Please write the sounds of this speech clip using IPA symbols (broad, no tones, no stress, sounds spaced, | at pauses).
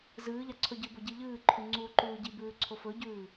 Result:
z ɨː ʎ a ǀʰ ɵ ɟ ɨ b o ɟ i ʎ ɨː ǃʰ ʉ ŋ͡ǀ uː ǃ ʉː ɟ i b ʉː ǀʰ o f ɵ ɟ ʉː